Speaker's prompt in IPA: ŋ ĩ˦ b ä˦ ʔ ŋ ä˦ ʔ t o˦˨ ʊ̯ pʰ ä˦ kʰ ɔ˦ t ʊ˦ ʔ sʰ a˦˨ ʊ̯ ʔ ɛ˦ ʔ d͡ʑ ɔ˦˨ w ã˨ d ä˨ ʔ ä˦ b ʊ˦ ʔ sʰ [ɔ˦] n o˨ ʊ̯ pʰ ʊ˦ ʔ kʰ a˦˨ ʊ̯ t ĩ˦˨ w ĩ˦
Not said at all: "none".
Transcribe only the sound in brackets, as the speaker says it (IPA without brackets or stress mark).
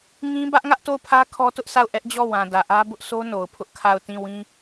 o˦